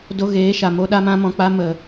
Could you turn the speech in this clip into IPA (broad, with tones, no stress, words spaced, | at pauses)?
do˧ ɣeː˨˦ʃa˨ mo˦ɗa˦ mã˦mɔ̃˧k͡pa˦ mə˨